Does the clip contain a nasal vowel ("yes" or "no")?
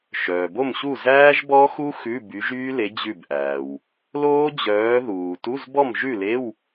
no